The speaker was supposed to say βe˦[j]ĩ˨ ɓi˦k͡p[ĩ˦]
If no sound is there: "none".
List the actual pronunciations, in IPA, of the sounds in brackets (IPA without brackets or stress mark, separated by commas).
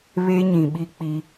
ɲ, i˦